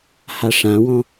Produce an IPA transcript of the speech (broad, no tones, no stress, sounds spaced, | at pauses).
h a ʂ ã w ɔ̃